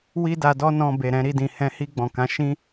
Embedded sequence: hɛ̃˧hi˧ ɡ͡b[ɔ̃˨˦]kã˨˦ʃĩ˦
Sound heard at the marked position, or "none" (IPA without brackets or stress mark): ɔ̃˨